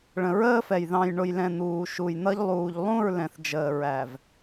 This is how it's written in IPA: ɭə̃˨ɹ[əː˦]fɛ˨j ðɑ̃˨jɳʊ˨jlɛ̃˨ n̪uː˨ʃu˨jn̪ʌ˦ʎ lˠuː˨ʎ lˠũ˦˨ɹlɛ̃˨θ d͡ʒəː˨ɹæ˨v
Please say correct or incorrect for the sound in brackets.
correct